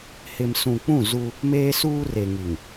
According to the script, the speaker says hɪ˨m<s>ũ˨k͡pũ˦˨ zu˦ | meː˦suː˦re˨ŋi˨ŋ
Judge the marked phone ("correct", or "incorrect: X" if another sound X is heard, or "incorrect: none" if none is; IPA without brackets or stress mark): correct